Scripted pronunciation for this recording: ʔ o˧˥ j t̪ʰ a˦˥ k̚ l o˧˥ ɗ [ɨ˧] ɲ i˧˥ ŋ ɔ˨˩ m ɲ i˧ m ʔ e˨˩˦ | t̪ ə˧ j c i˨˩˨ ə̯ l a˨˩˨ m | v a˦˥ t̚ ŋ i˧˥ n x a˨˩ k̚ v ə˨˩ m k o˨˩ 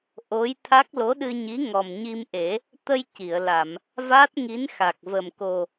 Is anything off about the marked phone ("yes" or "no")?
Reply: no